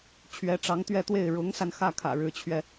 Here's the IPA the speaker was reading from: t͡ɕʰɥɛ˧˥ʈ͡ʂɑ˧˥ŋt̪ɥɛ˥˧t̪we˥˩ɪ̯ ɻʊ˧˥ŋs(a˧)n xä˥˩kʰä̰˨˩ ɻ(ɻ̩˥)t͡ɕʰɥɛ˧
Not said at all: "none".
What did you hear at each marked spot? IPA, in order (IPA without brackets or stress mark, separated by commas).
a˧, ɻ̩˧˥